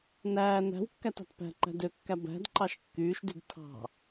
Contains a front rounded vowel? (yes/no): yes